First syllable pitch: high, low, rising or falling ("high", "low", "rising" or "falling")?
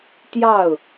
falling